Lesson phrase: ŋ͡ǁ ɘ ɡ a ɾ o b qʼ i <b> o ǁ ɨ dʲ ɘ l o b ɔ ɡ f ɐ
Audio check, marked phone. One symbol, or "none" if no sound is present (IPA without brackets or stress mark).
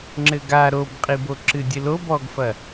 b